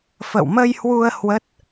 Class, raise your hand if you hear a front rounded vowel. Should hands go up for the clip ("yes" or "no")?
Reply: no